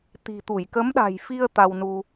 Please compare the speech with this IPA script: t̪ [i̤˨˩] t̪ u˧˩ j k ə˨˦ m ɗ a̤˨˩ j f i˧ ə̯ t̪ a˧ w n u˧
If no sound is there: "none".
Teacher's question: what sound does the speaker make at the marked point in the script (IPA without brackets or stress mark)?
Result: i̤˨˩